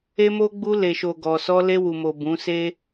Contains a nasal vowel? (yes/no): yes